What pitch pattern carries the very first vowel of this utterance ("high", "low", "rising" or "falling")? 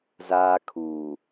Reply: high